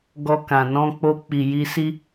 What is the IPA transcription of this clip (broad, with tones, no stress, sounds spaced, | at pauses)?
ɡ ɔ˧ k ã˨ n ɔ̃˧ k͡p o˧ k͡p i˨ j i˧ s i˦